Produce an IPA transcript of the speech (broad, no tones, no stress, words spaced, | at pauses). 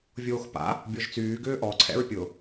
vʲoːxpa̰ | bʲɔʒt͡syː ɡʏːʔɔ ǀʰɛ̰ɹpʲʊ